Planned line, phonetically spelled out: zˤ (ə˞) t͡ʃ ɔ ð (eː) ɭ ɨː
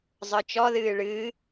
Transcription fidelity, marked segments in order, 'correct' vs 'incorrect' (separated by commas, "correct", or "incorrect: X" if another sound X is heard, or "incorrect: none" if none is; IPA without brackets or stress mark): correct, incorrect: ɨː